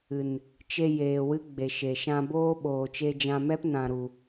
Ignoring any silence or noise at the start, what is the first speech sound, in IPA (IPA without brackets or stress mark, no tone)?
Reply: ɨ